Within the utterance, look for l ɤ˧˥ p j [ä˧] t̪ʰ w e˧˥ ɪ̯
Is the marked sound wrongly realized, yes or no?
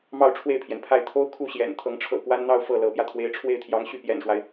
no